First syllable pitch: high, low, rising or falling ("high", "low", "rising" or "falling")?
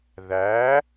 rising